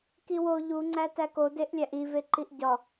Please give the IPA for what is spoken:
k i w o ʎ u ŋ͡ǀ æ t æ k o d e ʔ lʲ æ ʔ i v e ǃ i ʔ ɟ ɒ

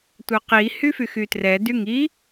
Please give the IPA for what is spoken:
tʷ œ q i h y f y x y t r ɛ d y ŋ i

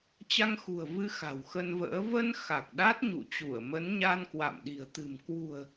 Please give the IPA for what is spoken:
t͡ɕ a˧ ŋ x ṳ˨˩ ə̯ v ɨ˧ x a̤˨˩ w x ə˧ n v ə̰ː˧˥ v ə˧ n x a˨˩ k̚ ɗ a˦˥ t̚ ɲ ṵ˧˨ t͡ɕ u˧˩ ə̯ m ə˨˦ n ɲ a˧ n k w a̰˧˨ m ɗ i̤˨˩ ə̯ t̪ ɨ̤˨˩ m k w ṳ˨˩ ə̯

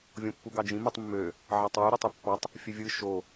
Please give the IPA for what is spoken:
vʲ õ pː u ɡ ɑ d͡ʒ ĩ m ɯ tˤ mː ø | ʕ ɑ tˤ w y ɾ ø tˤ y pː ɑ tˤ | fʲ ø vʲ ɯ ʃ o

